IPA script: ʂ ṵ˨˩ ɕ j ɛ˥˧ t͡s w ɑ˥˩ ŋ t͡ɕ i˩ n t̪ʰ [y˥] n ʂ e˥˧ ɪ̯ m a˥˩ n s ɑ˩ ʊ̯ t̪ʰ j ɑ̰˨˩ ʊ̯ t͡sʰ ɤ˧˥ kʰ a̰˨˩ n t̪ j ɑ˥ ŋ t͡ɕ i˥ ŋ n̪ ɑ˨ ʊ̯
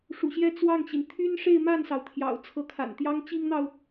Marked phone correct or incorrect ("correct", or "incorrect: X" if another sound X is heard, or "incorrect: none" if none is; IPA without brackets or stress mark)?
correct